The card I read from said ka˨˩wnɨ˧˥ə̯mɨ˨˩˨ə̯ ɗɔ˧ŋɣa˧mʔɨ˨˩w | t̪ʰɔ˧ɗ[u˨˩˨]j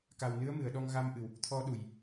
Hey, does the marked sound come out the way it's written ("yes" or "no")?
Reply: yes